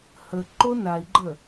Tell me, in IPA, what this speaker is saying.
h ə ǃ o n a i̯ ɡ͡ǃ ə

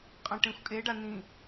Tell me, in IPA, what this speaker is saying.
qʼ ɐ̃ ʈ ẽ xʷ kʼ e ɖ a n̪ ĩ

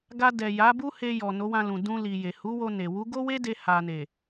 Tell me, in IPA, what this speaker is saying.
ɡ a˧ d ɛ˨ j a˨˦ b u˦ h e˧ j ɔ˨ n o˨˦ w ã˧ l ũ˨ d ũ˧ l i˨ j e˨ h u˨˦ w o˧ n e˨ w u˨˦ ɡ o˦ w e˦ d e˧ h a˨ n e˨

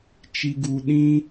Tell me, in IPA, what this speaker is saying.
t͡ʃ i˧ ɡ u˧ ɗ ĩ˦

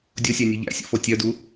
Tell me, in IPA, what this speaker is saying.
dʲ o sʲ æ nʲ u ʎ æ̰ sʲ ṵ f o tʲ œ d u

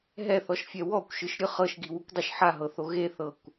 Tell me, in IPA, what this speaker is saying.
ɦ ɛ θ ɔ ʃ fʲ ɛ w ɔ kʷ ʃ ɯ ʃ ɾʲ ɯ χ ɤ ʃ ɡ i w u kʷ dˤ o ʃ ħ a ɦ ɤ θ o ɣ e θ ɤ kʷ

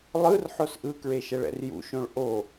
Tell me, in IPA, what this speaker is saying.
lˠ ɯ r ħ o s ʔ ɯ k ɹ e ʃ ɛ ɭ ɛ̰ r j ṵ ʃ õ ɭ ʔ o

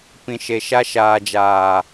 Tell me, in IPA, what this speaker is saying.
p ĩ˨ ʃ e˨ ʃ a˧ ʃ aː˨ d͡ʒ aː˨

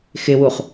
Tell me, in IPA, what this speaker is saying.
x ɪ w u χ

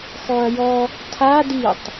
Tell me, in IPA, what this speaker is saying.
x ɔ ɐ̯ j ɔ | tʰ a d i tˤ

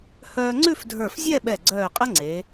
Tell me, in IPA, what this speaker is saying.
h œː˧ ŋ͡ǀ ʉ˥˧ f dʱ ə˞˧˩ f zʲ ɛ˥˧ ɓ ɛ˧˩ ɡ͡ǀ œː˧˩ qʼ ɐ˥ ŋ͡ǀ e˩˧

